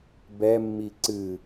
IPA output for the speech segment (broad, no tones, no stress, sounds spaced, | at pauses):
b ɛ mː i ǀ ɨ